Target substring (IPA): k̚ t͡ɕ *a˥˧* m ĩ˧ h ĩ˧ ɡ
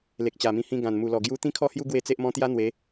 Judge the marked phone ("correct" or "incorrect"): incorrect